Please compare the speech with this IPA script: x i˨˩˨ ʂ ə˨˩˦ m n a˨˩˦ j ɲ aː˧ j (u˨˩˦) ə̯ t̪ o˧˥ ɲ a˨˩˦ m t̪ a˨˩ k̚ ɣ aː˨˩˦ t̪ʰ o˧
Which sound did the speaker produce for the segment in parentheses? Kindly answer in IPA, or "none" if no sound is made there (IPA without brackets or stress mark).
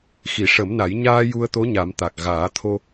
u˧